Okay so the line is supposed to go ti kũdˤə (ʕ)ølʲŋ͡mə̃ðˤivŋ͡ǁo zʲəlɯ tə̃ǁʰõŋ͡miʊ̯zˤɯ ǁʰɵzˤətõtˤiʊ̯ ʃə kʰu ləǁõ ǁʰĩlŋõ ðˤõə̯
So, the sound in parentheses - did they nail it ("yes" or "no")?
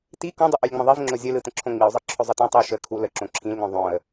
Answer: no